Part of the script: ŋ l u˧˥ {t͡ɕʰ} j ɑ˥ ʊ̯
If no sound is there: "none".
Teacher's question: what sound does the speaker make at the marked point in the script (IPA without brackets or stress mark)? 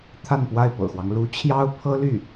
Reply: t͡ɕʰ